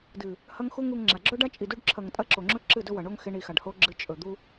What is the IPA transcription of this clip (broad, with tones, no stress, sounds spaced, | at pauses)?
d ɨ˨ | h ɐ˦ ŋ x u˦ ŋ u˧ ŋ ŋ͡ǁ a˨ ɡ͡ǁ ɵ˦ ɖ a˦ t͡ʃʼ i˨ d u˧ ɖ ǁʰ ɐ˨ ŋ tʼ ɐ˧ ǁ o˨ ŋ͡ǁ ɵ˦ ǁ ɨ˦˨ d ɵ˦ w ɐ˨ ɳ o˦ ŋ x e˧ ɳ i˨ x a˨ ɖ h o˧ ɡ͡ǁ ɨ˨ t͡ʃʼ ɵ˨ d̪ u˧